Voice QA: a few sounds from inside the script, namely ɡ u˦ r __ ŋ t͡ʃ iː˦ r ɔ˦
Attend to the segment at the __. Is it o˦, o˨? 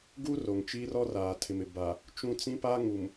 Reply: o˨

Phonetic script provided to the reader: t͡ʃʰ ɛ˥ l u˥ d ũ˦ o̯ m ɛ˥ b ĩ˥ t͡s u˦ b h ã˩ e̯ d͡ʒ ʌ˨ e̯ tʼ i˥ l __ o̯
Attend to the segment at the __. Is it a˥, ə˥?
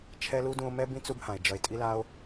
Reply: a˥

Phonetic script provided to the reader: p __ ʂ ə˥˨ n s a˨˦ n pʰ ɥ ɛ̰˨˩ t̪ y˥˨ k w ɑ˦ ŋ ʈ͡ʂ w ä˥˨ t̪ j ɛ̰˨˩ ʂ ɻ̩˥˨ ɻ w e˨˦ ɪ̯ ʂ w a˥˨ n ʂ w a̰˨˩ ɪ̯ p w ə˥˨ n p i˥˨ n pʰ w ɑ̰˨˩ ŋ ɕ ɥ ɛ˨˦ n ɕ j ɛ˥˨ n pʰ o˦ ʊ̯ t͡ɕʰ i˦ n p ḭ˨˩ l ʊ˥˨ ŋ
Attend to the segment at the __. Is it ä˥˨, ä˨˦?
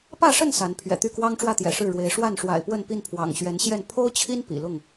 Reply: ä˥˨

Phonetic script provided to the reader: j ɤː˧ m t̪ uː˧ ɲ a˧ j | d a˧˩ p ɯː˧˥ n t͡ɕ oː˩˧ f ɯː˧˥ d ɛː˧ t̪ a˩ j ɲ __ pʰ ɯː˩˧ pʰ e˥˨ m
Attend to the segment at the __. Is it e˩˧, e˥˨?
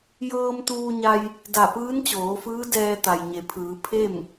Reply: e˩˧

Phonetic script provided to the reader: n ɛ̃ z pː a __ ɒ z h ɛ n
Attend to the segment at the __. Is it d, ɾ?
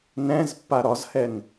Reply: ɾ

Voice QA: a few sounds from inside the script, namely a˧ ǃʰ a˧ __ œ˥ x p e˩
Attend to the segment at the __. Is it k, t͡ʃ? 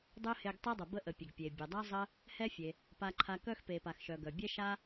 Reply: k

